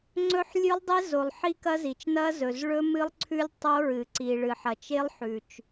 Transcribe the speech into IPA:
ŋ͡ǀ ɵ˦˥ ħ lʲ ʉ˦˥ lˠ dˤ e˦˥ z o˨ lˠ ħ i˦˥ k ɐ˦˥ z i˨ t͡ʃ n ɐ˦˥ z ɵ˨ z ɭ ɵ˦˥ m ɨ˦˥ lˠ ǀʰ ʉ˦˥ lʲ tˤ o˦˥ ɹ ɨ˨ ǀ i˨ ɭ ɨ˨ ħ ɐ˨ t͡ʃ e˦˥ lˠ ħ ʉ˨ t͡ʃ

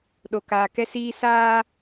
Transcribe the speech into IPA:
ɗ o˨ k aː˨ k ɛ˦ s iː˦ s aː˦

